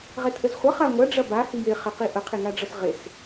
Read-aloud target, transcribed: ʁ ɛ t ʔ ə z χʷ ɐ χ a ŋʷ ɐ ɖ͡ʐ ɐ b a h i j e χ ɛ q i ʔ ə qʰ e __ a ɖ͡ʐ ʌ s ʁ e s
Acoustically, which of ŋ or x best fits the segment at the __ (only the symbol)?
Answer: ŋ